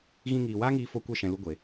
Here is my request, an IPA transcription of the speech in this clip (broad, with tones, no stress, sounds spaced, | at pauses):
ɣ ĩ˧ ŋ iː˨ w aː˦ ŋ iː˧ f o˧ kʷ ɛ˧ ʃ ɛ̃˨ l u˧ ɡʷ e˨